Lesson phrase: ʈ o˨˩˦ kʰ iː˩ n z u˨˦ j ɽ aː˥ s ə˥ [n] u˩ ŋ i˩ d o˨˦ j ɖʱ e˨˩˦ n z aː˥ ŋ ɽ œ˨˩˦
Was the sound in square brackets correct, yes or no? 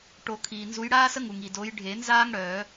no